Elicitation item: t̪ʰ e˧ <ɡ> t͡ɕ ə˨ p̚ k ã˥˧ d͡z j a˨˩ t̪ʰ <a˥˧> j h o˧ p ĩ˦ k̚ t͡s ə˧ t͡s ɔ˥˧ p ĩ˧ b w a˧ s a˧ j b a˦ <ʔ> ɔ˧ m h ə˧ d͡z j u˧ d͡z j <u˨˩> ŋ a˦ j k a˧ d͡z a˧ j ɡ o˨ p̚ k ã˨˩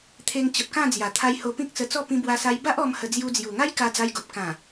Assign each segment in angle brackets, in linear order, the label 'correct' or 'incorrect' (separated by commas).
incorrect, incorrect, correct, correct